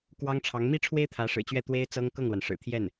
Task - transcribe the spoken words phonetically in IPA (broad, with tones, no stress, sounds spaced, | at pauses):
k w ɑ˥ ŋ ʈ͡ʂʰ ɑ˧˥ ŋ m i˥ ʈ͡ʂʰ w e˥ ɪ̯ t̪ʰ ä˧˥ ʂ ɻ̩˨˩ t͡ɕ ɥ ɛ˥˩ t̪ w e˥ ɪ̯ t͡s ɤ˥ ŋ k ɤ˥˩ ŋ l w a˩ n ʂ ɻ̩˨˩ t̪ʰ j ɛ˥˩ n